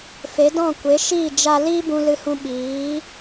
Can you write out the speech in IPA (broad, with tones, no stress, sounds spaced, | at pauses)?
f e˨˦ d ɔ̃˦˨ kʷ e˨˦ ʃ iː˦˨ d͡ʒ a˦ l iː˦ b ũ˧ l ɨ˧ h ũ˧ ɓ iː˨˦